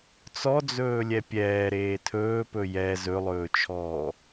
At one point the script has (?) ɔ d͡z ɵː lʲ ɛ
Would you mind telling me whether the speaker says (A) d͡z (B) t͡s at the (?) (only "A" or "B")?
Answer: B